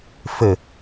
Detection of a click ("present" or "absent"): absent